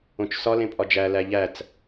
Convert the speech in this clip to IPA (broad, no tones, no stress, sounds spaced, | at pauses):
õ t͡ʃ s ɒ l ẽ pʼ ɒ d͡ʒ æ l æ ʎ æ t͡s